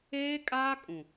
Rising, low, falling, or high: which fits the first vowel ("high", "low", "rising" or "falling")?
high